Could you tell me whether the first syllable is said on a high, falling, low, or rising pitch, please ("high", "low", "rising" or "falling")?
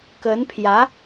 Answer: rising